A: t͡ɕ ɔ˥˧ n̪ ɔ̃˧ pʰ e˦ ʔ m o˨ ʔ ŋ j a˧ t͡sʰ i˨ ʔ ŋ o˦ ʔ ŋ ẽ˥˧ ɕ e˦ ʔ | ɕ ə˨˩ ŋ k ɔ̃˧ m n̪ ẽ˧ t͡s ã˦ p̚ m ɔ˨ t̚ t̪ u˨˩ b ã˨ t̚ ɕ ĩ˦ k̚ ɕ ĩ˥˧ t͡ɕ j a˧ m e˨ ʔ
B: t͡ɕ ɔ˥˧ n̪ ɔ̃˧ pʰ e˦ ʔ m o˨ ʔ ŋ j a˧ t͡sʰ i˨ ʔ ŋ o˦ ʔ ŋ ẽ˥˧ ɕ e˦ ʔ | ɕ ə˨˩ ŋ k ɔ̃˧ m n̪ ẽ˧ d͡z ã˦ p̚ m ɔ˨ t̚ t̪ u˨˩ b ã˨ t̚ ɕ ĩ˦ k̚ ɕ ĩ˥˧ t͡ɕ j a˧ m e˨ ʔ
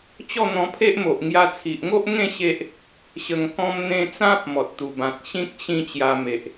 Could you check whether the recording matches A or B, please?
A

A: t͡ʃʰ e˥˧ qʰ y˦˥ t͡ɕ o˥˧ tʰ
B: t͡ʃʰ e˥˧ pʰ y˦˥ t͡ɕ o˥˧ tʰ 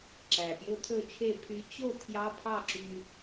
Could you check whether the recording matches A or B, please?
B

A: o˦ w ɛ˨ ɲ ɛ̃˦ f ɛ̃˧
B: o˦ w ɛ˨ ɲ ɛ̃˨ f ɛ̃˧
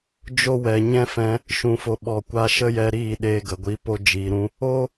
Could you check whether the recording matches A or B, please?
A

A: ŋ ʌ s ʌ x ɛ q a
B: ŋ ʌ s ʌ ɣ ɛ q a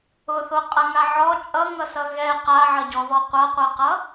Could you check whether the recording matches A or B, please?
B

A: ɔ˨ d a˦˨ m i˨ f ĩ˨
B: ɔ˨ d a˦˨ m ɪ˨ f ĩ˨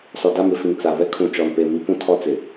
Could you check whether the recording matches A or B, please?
B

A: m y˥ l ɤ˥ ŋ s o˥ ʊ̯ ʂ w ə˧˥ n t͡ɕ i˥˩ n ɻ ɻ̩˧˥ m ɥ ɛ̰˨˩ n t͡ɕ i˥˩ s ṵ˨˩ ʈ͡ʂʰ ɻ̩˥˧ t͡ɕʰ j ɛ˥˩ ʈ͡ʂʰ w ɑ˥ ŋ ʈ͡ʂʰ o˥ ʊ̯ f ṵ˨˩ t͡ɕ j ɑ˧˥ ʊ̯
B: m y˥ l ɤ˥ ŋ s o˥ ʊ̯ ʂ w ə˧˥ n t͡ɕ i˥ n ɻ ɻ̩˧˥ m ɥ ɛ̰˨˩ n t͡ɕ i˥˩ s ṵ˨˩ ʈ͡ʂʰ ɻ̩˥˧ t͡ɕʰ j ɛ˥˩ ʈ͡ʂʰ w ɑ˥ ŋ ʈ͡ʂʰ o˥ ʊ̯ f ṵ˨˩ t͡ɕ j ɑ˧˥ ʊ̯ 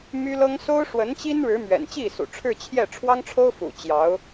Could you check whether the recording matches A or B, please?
B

